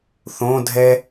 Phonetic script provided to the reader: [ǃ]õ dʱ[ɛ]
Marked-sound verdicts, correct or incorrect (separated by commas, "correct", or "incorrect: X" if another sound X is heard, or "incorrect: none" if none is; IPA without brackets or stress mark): incorrect: θ, correct